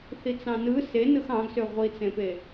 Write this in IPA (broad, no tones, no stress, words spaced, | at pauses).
θit͡sɑ̃nɯ se nɯxɑ̃ɡsø ʁʷit͡sẽpe